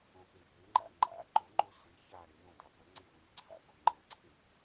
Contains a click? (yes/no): yes